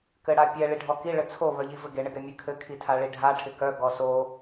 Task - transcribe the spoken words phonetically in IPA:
kɘɽapʲɛ ɭiɖʱɔki ɭɘt͡sʰo βœʎivɘɡe ɳɪɡɛmʲɘkʰɘ kʰitʰaɭiɖʱa ʈʰɪkœ ɡɔso

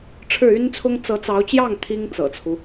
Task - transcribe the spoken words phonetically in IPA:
ʈ͡ʂʰɻ̩˥˩y˥nt͡sʰʊ˥ŋ t͡sɤ˧˥t͡sɑ˧˥ʊ̯t͡ɕjɑ˥˩ŋ t̪ʰi˥ŋt͡sɤ̰˨˩t͡sʰu˦

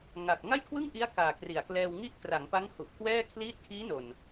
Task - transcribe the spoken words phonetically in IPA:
ŋa˨˩k̚ ŋa˥˩jkʰwɯ˥˩ŋʔi˦˥a̯ kaː˨˩kri˩˦a̯klɛː˧wŋi˥˩ʔ kra˩˦ŋpa˦˥ŋ hu˨˩ʔ kwɛː˥˩ kʰliː˦˥t̚kʰiː˦˥no˨˩n

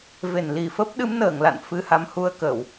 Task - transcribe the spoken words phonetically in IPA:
ve˧˩n li˧˩fə˦˥p̚ ɗɨ˨˦mnəː˧˩ŋla̰˧˨n fɨ˧ha˨˦mhu˧ə̯kə˧˩˨w

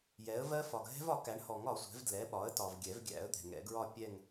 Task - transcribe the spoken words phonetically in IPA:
jɛ˩˥ə̯vɜ˦˥ fɒ˨ɡɦɛ̤˦˥vɒ˩˥ kæ˩˥ɳhɔ˨˩˦ŋɒ˨˩˦sʷɛ̤˩˥v dlɛ˩˥ɓɒ˩˥ə̯tɒ˨v ɡʲɛ˨˩˦vɡʲæ̰˨˩˦ə̯ d̪ɛ̤˨ŋɛ̰˨˩˦ɡɹɒ˥˧ pʲɛ˥˧ŋ

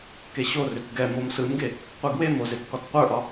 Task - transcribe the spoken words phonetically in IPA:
keɕorʏt ɡɛ momsɯmɡe | qʷɯɡwemo zetkɒtqʷə˞ʔɒ

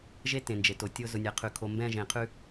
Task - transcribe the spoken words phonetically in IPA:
ʒe˦ tẽ˨nd͡ʒe˨to˨ tʲʊ˦ zʊ˨nʲæ˨qʰʉ˨ kʰo˨mbɛ̃˦˨ ʒẽ˨qʰʉ˦

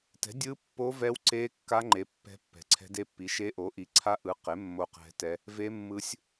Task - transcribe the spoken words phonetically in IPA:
tɛ̤˨˥dʲɯ˦˥pːo˦˥ vɛ˦˥wǀe˦˥kːa˦˥ŋ͡ǃe˨˥ pːɛ̤˦˥pːɛ̤˨˥ǀʰɛ̤˦˥d e˦˥pːi˨˥ʃe˦˥ ʔo˨˥ʔi˨˥ǀʰa˦˥ʔɯ˨˥ qe˨˥ mːo˦˥qɛ̤˦˥tɛ˦˥ | ve˦˥mːɯ˦˥sʲ

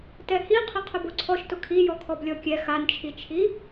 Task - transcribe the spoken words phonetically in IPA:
tɛhi qʰɪqʰʊboǀʰɔʃ tʊkʰijɔ kʰɔblʲɔkʲɛ xant͡ʃʰit͡ʃʰi

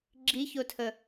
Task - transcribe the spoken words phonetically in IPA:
ɡ͡ǁiçotʰə

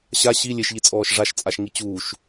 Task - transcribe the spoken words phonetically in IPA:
ɕa ɕi lʲeʃʎit͡sʼɔːʃ ʐaʃt͡sʼaʃŋi t͡ɕuːʃ

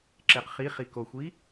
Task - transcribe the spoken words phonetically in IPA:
ǁeqχiχi koxʷi

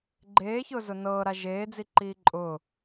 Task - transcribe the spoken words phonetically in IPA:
ɡ͡ǃeːçʊːzʊ nɤːɾa ʒeːd͡ziǃiː ǃʼʊː

